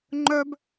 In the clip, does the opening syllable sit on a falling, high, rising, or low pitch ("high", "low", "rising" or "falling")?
high